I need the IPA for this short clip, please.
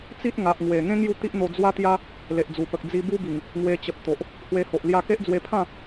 t͡s i˦ t̚ ŋ a˨ ʔ ŋ w e˨˩ ŋ ẽ˦ ŋ j u˥˧ t̪ i˦ ʔ n̪ o˧ d͡z w a˦ t̪ j a˦ | l e˨ ʔ d͡z u˨˩ p ə˨ k̚ d͡z i˧ b u˦ b i˨˩ ŋ | ŋ w e˧ t͡ɕ ə˨ p̚ t̪ o˨ ʔ | h w e˧ h o˨ ʔ l j a˧ k e˦ ʔ d͡z w e˧ pʰ ã˥˧

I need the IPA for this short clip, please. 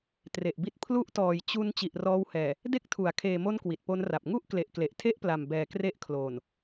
t r e˨˩ ʔ b i˦˥ t̚ pʰ l u˦˥ ʔ t ɔː˨˩ j t͡ɕ u˧ n t͡ɕ i˨˩ ʔ r ɔː˧ w h ɛː˨˩ | d e˦˥ k̚ tʰ u˩˦ a̯ kʰ eː˨˩ m o˧ n k w i˨˩ t̚ p o˦˥ n r a˨˩ p̚ ŋ u˥˩ ʔ k l e˨˩ ʔ k l e˨˩ ʔ tʰ e˥˩ ʔ p l a˨˩ m b ɛː˨˩ k r e˦˥ ʔ kʰ l oː˨˩ n

